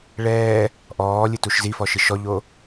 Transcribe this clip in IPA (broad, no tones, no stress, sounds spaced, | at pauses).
ɭ ɛː | ʔ ɔː lʲ ɨ t u ʃ z i f ɔ ʃ ɨ ʃ ɔ ʎ o